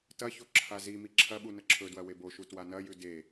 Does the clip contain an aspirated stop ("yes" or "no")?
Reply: yes